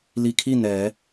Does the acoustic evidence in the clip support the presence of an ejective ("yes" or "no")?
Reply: no